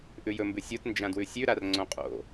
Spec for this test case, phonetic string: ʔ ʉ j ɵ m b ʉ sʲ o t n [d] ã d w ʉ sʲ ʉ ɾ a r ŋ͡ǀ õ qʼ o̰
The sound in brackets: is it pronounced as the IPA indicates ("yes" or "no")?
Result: no